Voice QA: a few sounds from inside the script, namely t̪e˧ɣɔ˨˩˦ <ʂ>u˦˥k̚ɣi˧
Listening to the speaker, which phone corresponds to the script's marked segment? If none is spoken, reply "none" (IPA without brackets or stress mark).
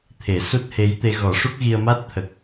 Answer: ʂ